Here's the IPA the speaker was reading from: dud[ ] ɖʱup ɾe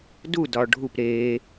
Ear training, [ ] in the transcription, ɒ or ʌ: ɒ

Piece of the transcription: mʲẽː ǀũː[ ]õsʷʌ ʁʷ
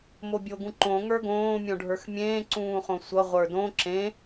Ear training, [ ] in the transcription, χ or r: χ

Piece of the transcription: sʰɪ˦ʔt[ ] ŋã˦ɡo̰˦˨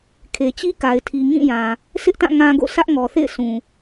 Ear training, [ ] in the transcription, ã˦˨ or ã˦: ã˦˨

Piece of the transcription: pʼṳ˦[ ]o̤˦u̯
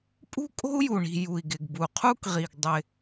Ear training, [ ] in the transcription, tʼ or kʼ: kʼ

